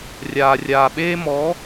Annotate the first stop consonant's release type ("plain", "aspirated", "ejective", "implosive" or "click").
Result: implosive